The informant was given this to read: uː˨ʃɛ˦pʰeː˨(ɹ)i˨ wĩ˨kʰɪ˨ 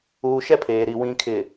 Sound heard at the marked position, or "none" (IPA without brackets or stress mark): ɾ